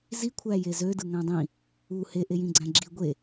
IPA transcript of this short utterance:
zikʷʰæ jezødɯ ŋæ̃dˤĩ | u heʔejĩɡ͡ǀæ̃ ɡ͡ǁi ɡʷe

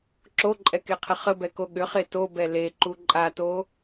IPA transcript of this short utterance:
ǁoǃʼɛkeqʰə χəbɛko ɠʏχe tobɛ leǃu ǃʼato

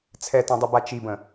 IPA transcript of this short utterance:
t͡sʰɛtɛ̃dˤʉba t͡ʃibə̃

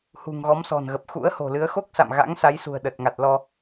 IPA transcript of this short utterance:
hṳ˨˩ŋɣɔ˨˦msɔ̤˨˩nɣə˨˩p̚ xṵ˧˥ə̯ho̤˨˩lɨ˨˦ə̯ xo˦˥k̚sa̰˧˨m ɣa̰˧˥ŋsa˨˦jsṳ˨˩ə̯ ɗə˨˩t̚ŋa˨˩t̚lɔ˧

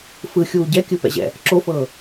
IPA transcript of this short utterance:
fɯxʲuː ɟɛkʲɯpɛ̰ʑɛ̰ | ǁofɤː

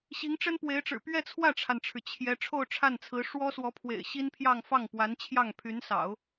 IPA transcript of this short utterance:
ɕi˧˥ŋʈ͡ʂə˥npwe˧˥ɪ̯ʈ͡ʂɻ̩˨˩ pɥɛ˥˧t͡sʰwä˥˩ʈ͡ʂʰa˩nʈ͡ʂʰɻ̩˩ t͡ɕʰjɛ˧˥ ʈ͡ʂʰo˥˧ʊ̯ʈ͡ʂʰa˥˩nt͡sʰɹ̩˧˥ ʂwɔ˥swɔ˧˥pʰwḛ˨˩ɪ̯ ɕi˥npʰjɑ˥˧ŋ fɑ˥˩ŋpwa˧˥nt͡ɕʰjɑ˥˩ŋ pʰy˧˥nsɑ̰˨˩˦ʊ̯

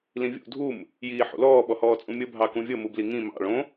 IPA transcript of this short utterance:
lĩvʲṵ dʱum | jiːħṵlɔː ɓɔhɔːt͡sʼũmʲɤ bʱɑkũvʲɤ mubliŋĩ mɑ̰ ɭõ

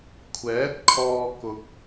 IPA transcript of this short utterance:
kʷʰɛː˨˥t̚ kʰɔː˨ kʊ˨k̚

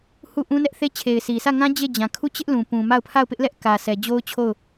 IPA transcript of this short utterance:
hu˦˨ʔũ˦nɛ˦ʔθe˦ t͡ɕʰe˨ɪ̯sʰi˨sʰä˦˨ŋã˦ d͡ʑe˦˨d͡ʑã˨ kʰu˦˨ t͡ɕɪ˦ʔlũ˨ pũ˨ ma˦˨ʊ̯pʰa˦˨ʊ̯pɪ˦ʔlɛ˦ʔ kä˨sʰɛ˨ d͡ʑo˦ʊ̯t͡ɕʰo˦˨ʊ̯

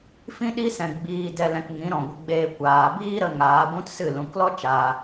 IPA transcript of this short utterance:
fĩ˦ɗi˦sɛ̃˨ ɡ͡biː˧dɛ˧lɛ̃˧kŋĩ˨˦ ɾɔ̃˨ɡʷə˧ɡ͡beː˧ kʷaː˨ biː˦ɾə˧ ŋaː˨˦ ɡʷũ˦tsɨ˦˨ lũ˨klɔ˦t͡ʃaː˨

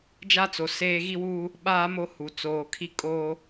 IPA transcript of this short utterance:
d͡ʒa˦t͡so˨ seː˦ ɣi˦wuː˦ | ɓaː˦mo˦hu˨ t͡soː˨kʰi˦ kʼoː˦

